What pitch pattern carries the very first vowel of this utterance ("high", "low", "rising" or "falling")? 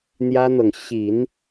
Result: high